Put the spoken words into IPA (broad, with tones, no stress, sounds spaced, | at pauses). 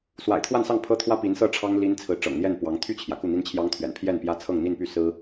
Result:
s w a̰˨˩ ɪ̯ t̪ʰ w a˥˧ n s ɑ˥˩ ŋ pʰ ɤ˥ t̪ʰ w ä˥ p i˧˥ n s ɤ˥˩ ʈ͡ʂʰ ɑ˥ ŋ l i˥ n t͡sʰ ɹ̩˧˥ ʈ͡ʂ ɤ̰˨˩ ŋ n̪ j ɛ˥˩ n p w ɑ˧˥ ŋ t̪ʰ y˥˩ t͡ɕʰ j ä˩ k u˥˩ n̪ i˥ n t͡ɕʰ j ɑ˥ ŋ t̪ʰ ɥ ɛ̰˨˩ n pʰ j ɛ˥˩ n p j ä˥ t͡sʰ ɤ˥˧ ŋ n̪ i˥˧ n p y˥˩ s ɹ̩˥